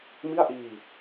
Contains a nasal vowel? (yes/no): no